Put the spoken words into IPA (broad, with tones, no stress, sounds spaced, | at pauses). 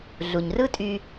ɮ u˩ ɲ r ɯ˥ tʼ y˧